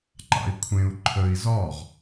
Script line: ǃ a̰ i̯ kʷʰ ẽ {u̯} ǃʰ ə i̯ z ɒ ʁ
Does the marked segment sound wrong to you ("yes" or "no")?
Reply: no